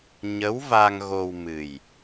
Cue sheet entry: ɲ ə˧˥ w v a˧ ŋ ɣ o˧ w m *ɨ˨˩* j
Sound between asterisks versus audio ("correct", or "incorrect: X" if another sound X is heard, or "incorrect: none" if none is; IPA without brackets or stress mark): correct